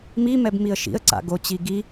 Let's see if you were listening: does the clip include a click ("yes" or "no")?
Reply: yes